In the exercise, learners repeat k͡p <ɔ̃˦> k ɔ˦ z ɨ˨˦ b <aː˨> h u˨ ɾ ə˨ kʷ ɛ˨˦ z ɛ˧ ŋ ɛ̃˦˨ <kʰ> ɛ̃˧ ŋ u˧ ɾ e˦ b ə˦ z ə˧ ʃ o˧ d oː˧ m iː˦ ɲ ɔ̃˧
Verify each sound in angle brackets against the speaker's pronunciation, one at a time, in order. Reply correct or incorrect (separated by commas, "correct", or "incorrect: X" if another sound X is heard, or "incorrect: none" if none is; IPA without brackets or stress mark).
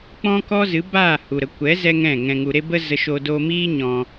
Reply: correct, incorrect: aː˦˨, incorrect: ŋ